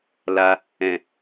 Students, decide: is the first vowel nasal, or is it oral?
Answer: oral